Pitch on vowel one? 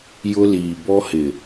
high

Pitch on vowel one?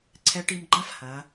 rising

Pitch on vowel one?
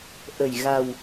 low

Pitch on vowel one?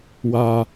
low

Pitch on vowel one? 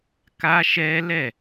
high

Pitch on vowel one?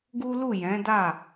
high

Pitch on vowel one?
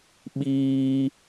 high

